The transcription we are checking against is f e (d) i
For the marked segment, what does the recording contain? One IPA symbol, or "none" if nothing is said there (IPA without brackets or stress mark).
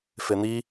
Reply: n̪